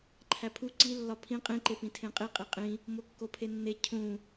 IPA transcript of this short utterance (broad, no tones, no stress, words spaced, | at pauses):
ǃʰæpʰu ǀi lːɒpʰĩ qʼĩǃe pĩtʰẽqʼi qʼiqʼĩ | mokːopʰenːe cʰũ